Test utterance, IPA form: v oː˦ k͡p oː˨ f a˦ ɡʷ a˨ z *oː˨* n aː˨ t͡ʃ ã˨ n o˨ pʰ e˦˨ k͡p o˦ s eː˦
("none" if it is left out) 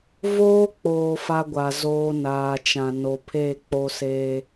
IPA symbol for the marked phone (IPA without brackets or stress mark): oː˦